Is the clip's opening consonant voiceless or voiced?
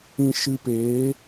voiceless